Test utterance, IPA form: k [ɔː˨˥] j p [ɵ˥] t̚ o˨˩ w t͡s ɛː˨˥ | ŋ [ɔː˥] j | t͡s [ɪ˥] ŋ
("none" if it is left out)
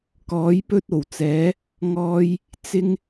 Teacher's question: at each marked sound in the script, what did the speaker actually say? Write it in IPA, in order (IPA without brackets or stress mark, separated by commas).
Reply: ɔː˨˥, ɵ˥, ɔː˧, ɪ˥